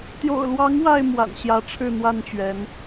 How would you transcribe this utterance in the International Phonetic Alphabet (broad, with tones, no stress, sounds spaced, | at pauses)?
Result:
t̪ j o̰˨˩ ʊ̯ l w ɑ˨˦ ŋ w a˥˨ ɪ̯ m w a̰˨˩ n ɕ j ä˨˦ ʈ͡ʂʰ ɻ̩˥˨ n̪ w a˥˨ n t͡ɕ ɥ ɛ˨˦ n